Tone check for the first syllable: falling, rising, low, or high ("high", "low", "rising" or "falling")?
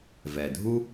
low